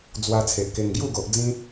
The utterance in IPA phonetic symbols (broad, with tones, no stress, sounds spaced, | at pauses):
d͡z w a˧ t͡sʰ e˨ ʔ k e˧ ŋ ɡ j u˥˧ ɡ o˨ ʔ d͡z ĩ˦